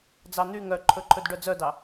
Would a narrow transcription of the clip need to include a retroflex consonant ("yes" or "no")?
yes